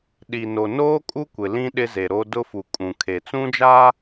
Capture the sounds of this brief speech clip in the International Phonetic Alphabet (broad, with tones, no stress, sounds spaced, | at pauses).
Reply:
ɗ i˨ n o˨ n oː˦ kʼ u˦ kʷ ɪ˨ l ĩ˦ ɗ ɪ˦ z e˨ ɾ o˦ d ʊ˦ f u˨ kʼ ũ˨ kʰ e˨ t͡s ũ˦ d͡ʒ a˦